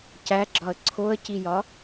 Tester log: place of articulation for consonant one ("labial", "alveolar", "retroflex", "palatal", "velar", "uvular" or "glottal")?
palatal